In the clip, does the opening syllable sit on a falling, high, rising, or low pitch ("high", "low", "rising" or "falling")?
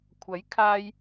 rising